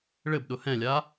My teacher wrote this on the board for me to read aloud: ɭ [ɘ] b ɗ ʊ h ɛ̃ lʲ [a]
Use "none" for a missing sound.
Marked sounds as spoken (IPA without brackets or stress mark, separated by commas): ɘ, a